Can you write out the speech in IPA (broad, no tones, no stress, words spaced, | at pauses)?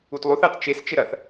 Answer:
utlˠuθ ɑtt͡ʃes t͡ʃɪɾɐθ